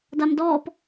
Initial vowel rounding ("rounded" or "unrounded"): unrounded